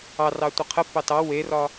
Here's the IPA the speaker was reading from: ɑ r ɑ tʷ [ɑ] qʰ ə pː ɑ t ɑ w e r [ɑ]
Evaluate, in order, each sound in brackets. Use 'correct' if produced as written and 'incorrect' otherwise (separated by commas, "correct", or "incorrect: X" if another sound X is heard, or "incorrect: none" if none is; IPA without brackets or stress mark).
incorrect: ə, incorrect: ɒ